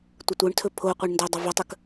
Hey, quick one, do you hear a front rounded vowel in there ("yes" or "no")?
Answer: yes